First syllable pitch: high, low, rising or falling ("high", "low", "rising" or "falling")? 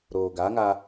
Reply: low